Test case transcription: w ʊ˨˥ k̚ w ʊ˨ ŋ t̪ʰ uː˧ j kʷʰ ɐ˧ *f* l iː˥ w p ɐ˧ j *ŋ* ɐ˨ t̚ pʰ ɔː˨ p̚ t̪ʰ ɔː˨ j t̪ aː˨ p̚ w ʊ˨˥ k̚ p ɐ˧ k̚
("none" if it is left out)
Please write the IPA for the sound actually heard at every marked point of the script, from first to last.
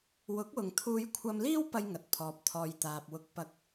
m, ŋ

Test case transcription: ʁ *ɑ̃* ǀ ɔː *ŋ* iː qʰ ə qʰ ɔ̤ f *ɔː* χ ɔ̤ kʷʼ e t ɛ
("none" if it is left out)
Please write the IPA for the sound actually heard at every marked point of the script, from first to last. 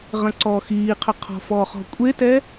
ə̃, x, ɔː

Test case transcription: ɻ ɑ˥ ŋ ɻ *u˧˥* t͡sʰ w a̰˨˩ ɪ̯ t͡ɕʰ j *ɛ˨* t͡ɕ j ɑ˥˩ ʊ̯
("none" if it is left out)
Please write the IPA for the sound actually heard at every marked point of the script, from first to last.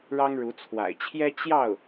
u˧˥, ɛ˥

